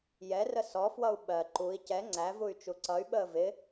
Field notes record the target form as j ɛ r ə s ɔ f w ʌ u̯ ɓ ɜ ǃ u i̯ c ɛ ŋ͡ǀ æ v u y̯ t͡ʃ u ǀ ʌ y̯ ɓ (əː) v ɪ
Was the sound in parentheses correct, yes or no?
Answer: yes